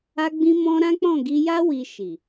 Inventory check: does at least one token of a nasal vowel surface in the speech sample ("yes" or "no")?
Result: yes